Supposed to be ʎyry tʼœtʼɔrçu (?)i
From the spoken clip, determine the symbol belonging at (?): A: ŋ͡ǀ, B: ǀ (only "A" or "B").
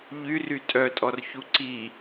B